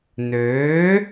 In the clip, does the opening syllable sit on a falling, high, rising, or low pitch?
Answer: rising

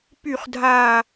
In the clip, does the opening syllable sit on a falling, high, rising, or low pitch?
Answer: falling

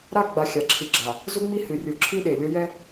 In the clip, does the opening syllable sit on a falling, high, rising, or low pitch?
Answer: falling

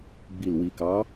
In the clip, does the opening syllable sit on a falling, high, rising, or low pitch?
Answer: low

